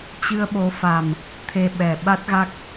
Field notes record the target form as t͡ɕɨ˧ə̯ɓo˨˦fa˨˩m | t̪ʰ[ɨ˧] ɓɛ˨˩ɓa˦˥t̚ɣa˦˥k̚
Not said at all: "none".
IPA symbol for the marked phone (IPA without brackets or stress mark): e˧